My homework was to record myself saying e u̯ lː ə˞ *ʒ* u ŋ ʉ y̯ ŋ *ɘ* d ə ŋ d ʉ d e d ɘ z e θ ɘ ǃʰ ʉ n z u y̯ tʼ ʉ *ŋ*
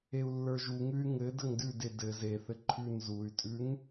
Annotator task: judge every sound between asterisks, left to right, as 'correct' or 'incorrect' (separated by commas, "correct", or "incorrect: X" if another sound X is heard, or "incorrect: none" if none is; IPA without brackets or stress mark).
correct, correct, correct